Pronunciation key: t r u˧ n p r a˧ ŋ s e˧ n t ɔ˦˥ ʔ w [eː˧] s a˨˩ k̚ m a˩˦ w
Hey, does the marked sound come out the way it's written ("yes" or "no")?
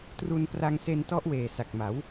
no